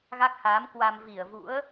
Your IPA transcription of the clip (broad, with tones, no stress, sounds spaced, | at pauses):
ɣ a˦˥ k̚ h aː˨˦ m k w a˧ m v i˧˩ ə̯ v ṵ˧˥ ə̯